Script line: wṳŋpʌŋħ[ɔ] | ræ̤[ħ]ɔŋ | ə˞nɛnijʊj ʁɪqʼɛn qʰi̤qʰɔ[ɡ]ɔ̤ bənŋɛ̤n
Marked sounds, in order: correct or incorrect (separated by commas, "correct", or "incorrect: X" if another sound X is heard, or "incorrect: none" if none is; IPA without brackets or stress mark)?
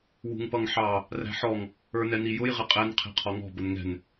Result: incorrect: ɑ, correct, incorrect: ŋ